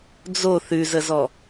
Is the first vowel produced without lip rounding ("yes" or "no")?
no